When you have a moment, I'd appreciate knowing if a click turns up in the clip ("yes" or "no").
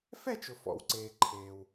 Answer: yes